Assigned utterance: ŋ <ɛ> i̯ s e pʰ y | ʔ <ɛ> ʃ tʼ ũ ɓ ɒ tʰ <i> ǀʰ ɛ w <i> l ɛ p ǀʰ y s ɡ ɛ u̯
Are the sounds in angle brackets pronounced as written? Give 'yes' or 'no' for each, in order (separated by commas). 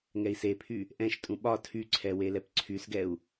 yes, no, no, no